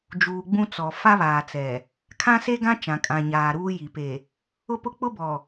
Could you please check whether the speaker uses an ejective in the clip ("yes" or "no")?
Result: yes